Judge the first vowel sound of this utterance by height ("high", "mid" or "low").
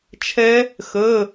mid